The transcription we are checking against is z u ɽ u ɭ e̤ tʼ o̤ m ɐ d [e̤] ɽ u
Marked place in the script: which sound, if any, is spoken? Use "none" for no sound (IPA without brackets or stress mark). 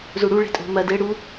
e